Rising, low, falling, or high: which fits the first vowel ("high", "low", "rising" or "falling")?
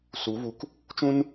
rising